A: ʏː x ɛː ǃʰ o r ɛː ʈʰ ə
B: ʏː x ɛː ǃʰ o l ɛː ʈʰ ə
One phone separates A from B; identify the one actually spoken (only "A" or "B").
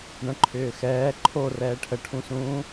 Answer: A